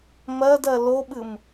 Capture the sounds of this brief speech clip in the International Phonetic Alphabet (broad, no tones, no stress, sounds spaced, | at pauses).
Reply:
m ɜ d ɜ l o ɓ ɨ m